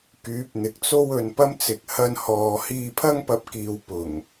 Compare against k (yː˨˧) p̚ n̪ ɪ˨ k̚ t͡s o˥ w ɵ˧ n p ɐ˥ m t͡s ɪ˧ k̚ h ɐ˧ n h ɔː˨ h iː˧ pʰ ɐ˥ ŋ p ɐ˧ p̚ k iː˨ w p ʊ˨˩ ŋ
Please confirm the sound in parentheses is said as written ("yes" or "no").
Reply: no